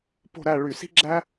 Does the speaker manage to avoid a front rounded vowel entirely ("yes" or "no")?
no